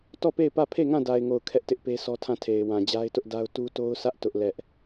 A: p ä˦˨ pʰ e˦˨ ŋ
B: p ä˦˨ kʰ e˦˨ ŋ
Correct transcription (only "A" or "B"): A